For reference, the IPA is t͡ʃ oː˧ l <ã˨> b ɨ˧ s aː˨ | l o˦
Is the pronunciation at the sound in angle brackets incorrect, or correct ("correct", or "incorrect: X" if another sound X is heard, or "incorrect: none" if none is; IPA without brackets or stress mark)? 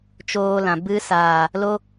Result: correct